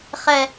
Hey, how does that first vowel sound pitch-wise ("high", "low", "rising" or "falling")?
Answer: low